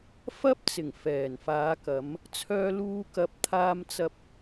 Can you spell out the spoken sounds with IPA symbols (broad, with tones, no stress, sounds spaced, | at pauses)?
f ɐ˥ p̚ t͡s ɪ˨˩ ŋ f ɛː˨˩ n f aː˨˧ k ɐ˨˧ m | t͡sʰ œː˧ l uː˧ k ɐ˨ p̚ t̪ʰ aː˧ m t͡s ɐ˧ p̚